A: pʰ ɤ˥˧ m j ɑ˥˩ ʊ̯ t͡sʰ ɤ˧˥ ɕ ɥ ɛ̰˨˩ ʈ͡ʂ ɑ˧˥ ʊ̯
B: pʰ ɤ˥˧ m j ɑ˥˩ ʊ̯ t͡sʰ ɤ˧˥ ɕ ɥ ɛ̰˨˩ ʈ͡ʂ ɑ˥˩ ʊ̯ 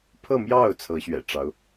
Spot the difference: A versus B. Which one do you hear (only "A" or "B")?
A